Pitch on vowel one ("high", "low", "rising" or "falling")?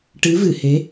rising